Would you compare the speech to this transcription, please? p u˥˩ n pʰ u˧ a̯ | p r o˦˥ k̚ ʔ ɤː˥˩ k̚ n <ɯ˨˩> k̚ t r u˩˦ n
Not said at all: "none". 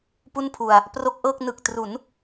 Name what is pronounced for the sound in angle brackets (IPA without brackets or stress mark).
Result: ɯ˨˩